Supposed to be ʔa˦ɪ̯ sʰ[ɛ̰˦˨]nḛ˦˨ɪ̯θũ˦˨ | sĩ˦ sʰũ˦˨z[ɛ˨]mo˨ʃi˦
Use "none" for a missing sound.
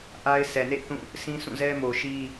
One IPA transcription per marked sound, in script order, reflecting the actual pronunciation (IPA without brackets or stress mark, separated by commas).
ɛ˨, ɛ˦